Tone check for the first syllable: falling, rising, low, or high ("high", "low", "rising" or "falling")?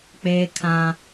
high